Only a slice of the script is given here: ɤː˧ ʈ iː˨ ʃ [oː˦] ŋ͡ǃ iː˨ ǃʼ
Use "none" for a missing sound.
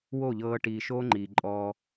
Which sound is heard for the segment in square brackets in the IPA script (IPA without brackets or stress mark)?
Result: oː˦